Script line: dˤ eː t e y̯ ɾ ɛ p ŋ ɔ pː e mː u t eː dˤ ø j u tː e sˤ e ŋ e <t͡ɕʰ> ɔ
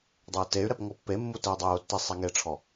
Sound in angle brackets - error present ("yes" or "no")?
yes